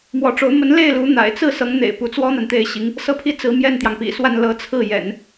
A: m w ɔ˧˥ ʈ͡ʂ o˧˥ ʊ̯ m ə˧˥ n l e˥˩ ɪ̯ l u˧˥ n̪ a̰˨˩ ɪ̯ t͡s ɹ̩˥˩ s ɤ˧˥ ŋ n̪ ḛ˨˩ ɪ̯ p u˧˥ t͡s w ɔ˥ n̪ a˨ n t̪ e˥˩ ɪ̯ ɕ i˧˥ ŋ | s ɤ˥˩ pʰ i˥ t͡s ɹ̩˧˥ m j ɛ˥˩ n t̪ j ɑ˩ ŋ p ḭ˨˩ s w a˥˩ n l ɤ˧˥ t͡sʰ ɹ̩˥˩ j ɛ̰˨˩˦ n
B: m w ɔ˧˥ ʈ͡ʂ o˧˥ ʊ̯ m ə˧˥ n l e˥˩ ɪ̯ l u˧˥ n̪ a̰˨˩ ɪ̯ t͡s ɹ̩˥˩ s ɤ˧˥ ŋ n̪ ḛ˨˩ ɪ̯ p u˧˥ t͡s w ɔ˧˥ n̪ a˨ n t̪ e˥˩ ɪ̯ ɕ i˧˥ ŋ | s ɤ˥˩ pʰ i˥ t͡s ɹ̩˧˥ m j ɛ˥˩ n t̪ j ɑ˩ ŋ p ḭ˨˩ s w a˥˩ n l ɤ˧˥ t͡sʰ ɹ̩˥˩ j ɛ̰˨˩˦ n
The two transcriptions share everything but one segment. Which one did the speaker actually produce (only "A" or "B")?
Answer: A